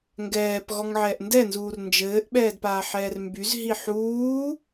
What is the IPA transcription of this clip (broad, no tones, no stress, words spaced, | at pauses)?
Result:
ŋɡɛːp ɣɔŋʕɛːʔndɛnzuːr nd͡ʒɘːʔɓɛːd paːħɛːrmbyzɦi ħuː